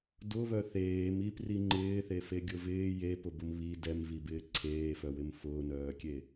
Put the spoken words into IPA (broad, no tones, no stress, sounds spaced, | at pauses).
d ʊ β œ θ eː m i p r i ŋ͡ǃ ɪː θ e f e ɡʲ ʊ v ɪː j e p ʊ b ʊ m β i d ɛ m v i b ɪː ǀʰ eː f œ w ɪ m f ʊː n œː kʲ e